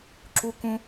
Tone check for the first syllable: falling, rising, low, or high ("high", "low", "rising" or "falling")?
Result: high